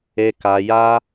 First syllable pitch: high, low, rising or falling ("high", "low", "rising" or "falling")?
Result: high